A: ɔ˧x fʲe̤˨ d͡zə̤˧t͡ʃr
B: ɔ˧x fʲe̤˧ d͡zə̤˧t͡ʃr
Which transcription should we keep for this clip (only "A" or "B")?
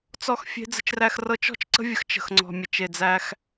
B